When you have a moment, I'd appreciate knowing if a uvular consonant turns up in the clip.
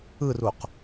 yes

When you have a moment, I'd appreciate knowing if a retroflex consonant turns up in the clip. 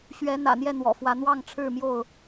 yes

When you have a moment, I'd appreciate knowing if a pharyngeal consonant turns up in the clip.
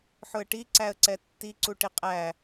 yes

